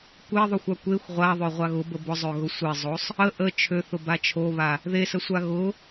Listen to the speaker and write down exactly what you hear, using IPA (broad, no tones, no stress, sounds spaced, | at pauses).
kʷ e ðˤ o xʷ a kʷ e xʷ ʁʷ a ðˤ ø ʁʷ a ɣ ʊ b ə b ʊ zˤ ø ɣ ʊ sʷ e zˤ o sˤ | ə ʔ ə t͡ʃʰ ø θ ʊ b a t͡ʃʰ o β a | ð e s ə sʷ a ɣ ʊ